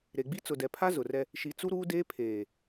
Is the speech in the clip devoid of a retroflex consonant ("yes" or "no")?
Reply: yes